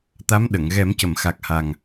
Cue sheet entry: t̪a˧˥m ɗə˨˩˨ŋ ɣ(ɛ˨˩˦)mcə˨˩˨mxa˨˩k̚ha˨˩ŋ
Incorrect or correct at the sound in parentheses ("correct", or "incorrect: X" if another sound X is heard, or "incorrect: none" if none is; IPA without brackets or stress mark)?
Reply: correct